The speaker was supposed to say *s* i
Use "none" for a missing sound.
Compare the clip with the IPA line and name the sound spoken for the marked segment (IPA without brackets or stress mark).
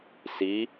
s